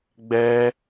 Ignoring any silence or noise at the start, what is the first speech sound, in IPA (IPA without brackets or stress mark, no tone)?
ɡ͡b